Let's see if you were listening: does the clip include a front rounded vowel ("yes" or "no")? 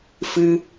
no